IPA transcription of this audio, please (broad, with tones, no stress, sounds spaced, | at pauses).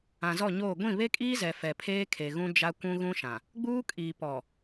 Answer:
ã˨ z ɔ˦˨ ɲ oː˦˨ ɡʷ ĩ˦˨ β e˦ kʼ iː˦ z ɛ˨ f ɛ˨ pʰ eː˦ kʰ e˨ ɣ ũ˦ d͡ʒ a˦ kʷ ũ˦ ɣ ũ˦ ʃ ã˨ | ɡ͡b uː˦ kʼ iː˨ p ɔ˨